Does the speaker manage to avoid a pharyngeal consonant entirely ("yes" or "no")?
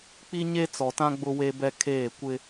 yes